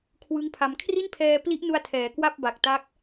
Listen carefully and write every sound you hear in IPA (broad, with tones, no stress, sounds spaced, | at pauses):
kʰ w ɯ˦˥ ŋ pʰ a˧ m kʰ r i˥˩ n pʰ ɛː˧ p l i˦˥ ʔ n u˧ a̯ tʰ ɛː˩˦ k w a˥˩ p̚ b a˨˩ k̚ t a˦˥ k̚